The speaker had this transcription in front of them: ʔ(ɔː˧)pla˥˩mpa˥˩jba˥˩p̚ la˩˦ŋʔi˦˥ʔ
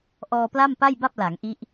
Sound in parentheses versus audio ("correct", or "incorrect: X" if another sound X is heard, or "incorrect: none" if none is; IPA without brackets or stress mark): correct